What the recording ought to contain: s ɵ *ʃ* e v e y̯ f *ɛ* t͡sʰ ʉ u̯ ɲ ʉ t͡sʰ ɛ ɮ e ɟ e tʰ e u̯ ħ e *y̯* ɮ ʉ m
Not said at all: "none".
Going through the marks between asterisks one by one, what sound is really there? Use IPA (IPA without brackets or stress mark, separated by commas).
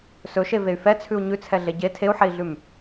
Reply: ʃ, ɛ, i̯